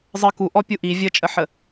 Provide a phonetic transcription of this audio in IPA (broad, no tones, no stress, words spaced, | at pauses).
zˤɜku ʔɔpʲuʔi vʲət͡ʃʼəħə